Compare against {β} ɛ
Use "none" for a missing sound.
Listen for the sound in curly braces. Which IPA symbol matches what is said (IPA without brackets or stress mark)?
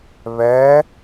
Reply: β